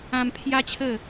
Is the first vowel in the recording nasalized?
yes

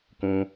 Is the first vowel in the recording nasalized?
yes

